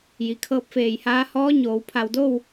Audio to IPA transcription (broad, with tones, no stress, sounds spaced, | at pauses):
j i˩ kʰ ɤː˧˥ p̚ f eː˧˩ j h aː˧˥ h ɔː˧˥ ɲ oː˩ w pʰ a˧˩ w d o˥˨ w